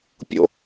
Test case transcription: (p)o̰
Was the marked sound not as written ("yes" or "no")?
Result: yes